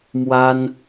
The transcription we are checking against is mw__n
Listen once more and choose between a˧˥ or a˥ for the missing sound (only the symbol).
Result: a˥